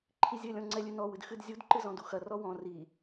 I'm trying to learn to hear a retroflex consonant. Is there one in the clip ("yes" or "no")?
no